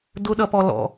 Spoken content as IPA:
d ʊ ɗ ʌ p ɔ l ɔ̰

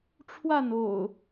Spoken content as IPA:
ʈ͡ʂʰ w a˥˨ n o̰˨˩ ʊ̯

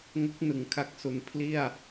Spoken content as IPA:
ŋ o˦˥ k̚ n ɯ˩˦ ŋ kʰ a˦˥ k̚ s u˩˦ n pʰ l i˥˩ a̯

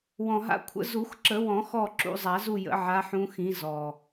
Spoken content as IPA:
w ɔ̃˨˩ ɦ a̰˨˦ kʷʰ ə̰˨˩˦ z u˨˩˦ x ǁ ə˨˩˦ w ɔ̃˨˩˦ x ɔ˦˨ ǁ ṵ˨˦ zˤ a˨˩˦ z u˦˨ j ə̰˨˩˦ ʕ a˨˦ ħ ũ˨˦ x ĩ˨˦ z ɔ˨˩

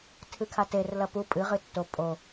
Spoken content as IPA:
tʰ ɨ kʰ a t e r l ɐ p u pʼ ɨ ʁ ɨ tː o pʼ o

